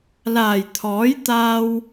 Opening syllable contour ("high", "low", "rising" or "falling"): low